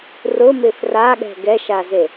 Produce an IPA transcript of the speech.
r ʊ m ɪ f r a ɠ ɛ̤ ɡ ɛ ʃ a z e

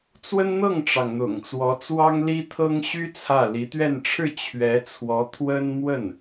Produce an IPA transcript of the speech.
t͡s w ə˥ n n̪ ɤ˥˩ ŋ ʈ͡ʂ ɑ˩ ŋ n̪ ʊ̰˨˩ ŋ t͡s w ɔ˧˥ t͡s w ɑ˥ ŋ l i˥ t̪ʰ ɤ˥ ŋ ɕ y˥ t͡sʰ ä˥˩ l i˧˥ t̪ ɥ ɛ˥˧ n ʈ͡ʂʰ ɻ̩˥˩ t͡ɕʰ ɥ ɛ˧˥ t͡sʰ w ɔ˧˥ t̪ʰ w ə˥ n m w ə˥˩ n

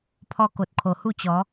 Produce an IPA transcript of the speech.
pʰ ɔ˧ k o˨ t̚ kʰ o˨˩ h u˥˧ t͡ɕ ɔ˨˦

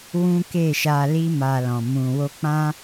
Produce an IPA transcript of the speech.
w ũ˦ k e˦˨ ʃ a˧ l i˦ m a˧ l ɔ̃˨ m ũ˨ w o˧ k͡p ã˦

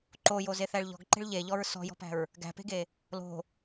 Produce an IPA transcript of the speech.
ǃ o j o z e θ æ ɭ ʎ ɔ̤ ɡ ǃ e̤ ɭ ʎ e ʎ ɔ ɹ s ɔ̤ j ɔ̤ p æ̤ ɹ | ɡ æ̤ p e̤ ɡ e | l o̤

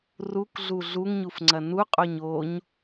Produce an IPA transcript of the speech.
r u k ɮ u ɮ u ŋ ɲ u f ŋ͡ǀ ɐ n u qʼ o ɲ o ɲ

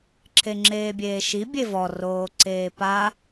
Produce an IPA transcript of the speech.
ǁʰ e ŋ͡ǁ eː bʲ eː ʃ i bʲ e v ɔ r oː ǀ eː p a

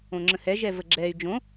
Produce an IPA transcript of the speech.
õ ŋ͡ǁ ə̃ h ɛ ʒ ɛ v ə ɡ͡ǁ ɛ y̯ d͡ʒ õ

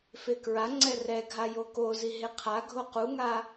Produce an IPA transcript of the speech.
f e k ɹ a ŋ͡ǀ ɛ r ɛ ɡʱ a j o k o z i ɦ e qʰ a ɡʱ o q u ŋ a

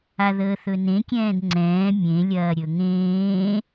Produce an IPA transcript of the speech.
a ð əː θ ɵ n ẽ kʲ ɛ̃ː d ŋ͡ǀ ɛ̃ː mʲ ẽ lʲ ɐː ɾʲ ɵ ŋ ẽː

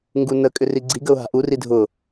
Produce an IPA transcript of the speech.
ŋ ɡ u n ə kʼ ʏ r i ɡ͡ǀ i ɡ ə ʊ̯ ɦ a̤ ʔ u r i dʱ ʊ

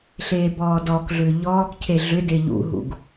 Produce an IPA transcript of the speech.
ɬ eː b ɔː d ɔː k ɮ ʏː ʎ ɔː k cʰ e ɮ ʏ d e ʎ ṵ ɦ ṵ ɡ

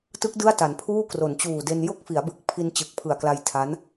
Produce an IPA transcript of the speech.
t ɯ˦˥ k̚ d ɯ˥˩ a̯ t a˩˦ n pʰ uː˥˩ k r o˩˦ n t͡ɕ uː˨˩ d e˧ n j o˥˩ k̚ f i˩˦ a̯ b ɯ˨˩ k̚ pʰ i˧ n t͡ɕ ɯ˨˩ k̚ pʰ ɯ˨˩ a̯ k l a˧ j tʰ a˦˥ n

